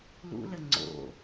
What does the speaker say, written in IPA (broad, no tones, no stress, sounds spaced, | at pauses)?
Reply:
l ṵ l ə ŋ͡ǀ o̰